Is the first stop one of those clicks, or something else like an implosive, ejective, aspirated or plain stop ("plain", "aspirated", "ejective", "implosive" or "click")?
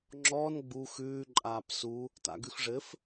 click